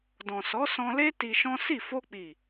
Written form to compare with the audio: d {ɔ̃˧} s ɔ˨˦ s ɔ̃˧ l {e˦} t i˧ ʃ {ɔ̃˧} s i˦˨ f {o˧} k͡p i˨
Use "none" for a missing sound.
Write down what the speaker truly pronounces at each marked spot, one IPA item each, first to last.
ɔ̃˨, e˦, ɔ̃˦, o˧

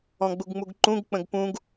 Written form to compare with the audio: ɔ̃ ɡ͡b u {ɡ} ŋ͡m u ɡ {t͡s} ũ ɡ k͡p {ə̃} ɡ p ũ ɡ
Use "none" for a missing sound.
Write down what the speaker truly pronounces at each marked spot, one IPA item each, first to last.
ɡ, ǃ, ə̃

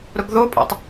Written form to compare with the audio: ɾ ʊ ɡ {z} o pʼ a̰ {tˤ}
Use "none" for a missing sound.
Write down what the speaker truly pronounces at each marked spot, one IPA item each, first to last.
ð, tˤ

